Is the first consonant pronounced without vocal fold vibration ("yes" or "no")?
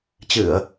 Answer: yes